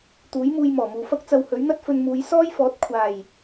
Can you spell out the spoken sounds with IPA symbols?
t̪uː˨˥jmuː˧j mɔː˨˩muː˨fɐ˥k̚t͡sɐ˧w hɵ˨˥ɥn̪ɐ˥t̚fɵ˧nmuː˨˧j sɔː˥jfɔː˨˥t̚ kʷʰaː˨˩j

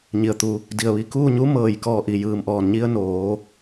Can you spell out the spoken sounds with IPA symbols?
ɲi˩ə̯t̪u˩ | di˩ə̯ʋi˧˩ kuː˥˨ ɲu˧˥mɤː˩j kɔː˧˩ʔi˩jɯː˩mʔɔː˩n ɲi˧ə̯ noː˩˧

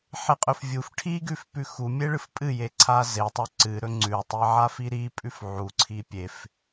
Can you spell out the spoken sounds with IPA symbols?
ħeqʼɵfvʲuf ʈʰiɡʉfpʉ xumʲeɭɨf pʼɨjeǀʰa zetˤɵ ǀɨ ɾɵŋ͡ǀʉtˤi ʕafiɾipʼʉf ʕuǀʰi pʲef

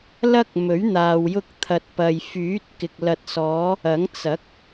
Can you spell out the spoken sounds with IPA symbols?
lɐ˥k̚ mɵ˨˥ɥn̪aː˨w jʊ˧k̚t̪ʰɐ˨t̚pɐ˨j fyː˨˥t̚kɪ˨k̚ lɐ˨t̚sɔː˨˧ | ɐ˨˥ŋ t͡sɐ˨˥k̚

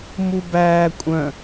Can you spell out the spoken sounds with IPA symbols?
mubæː kʷʼœ̃

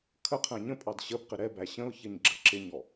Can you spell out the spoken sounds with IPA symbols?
kʰəqʰæ̃ ɲə̃pʼɑd ɕəbqɪ ɾɛbæ ɕə̃ʊ̯çəɲɡ͡ǁə ǁɪɲɔ

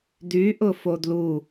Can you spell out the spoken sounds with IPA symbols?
dyʔʊ fodlu

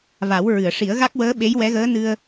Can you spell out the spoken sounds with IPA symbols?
va˨˩˦wɹɨ˨˩˨ə̯ʂi˨˩˦ə̯ ɣa˦˥k̚wəː˧˥ɓe˧˥j wɛ˧˥ɣəː˧˥ nɨ˧ə̯

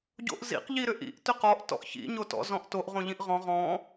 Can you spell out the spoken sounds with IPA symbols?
ɟo̰ʔzḭq ʎiɾʏʔḭʔ tʏqɔʔ tɔ̰ʔçḭ ɲotɔ̰ zɔ̃ʔtoʔ ʁõʎĩʔʁɔ̃ ʁɔ̃

